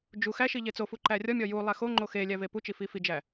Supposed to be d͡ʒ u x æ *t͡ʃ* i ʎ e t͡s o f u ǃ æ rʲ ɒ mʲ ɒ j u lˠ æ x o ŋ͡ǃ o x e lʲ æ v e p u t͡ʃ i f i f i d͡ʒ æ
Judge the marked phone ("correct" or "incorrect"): incorrect